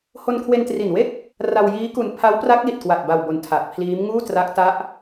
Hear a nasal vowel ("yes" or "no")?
no